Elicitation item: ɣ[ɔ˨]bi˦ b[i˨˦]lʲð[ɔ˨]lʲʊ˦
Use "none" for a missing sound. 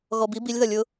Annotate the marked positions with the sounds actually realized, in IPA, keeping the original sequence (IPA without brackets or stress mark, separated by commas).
ɔ˨, i˨˦, ʌ˨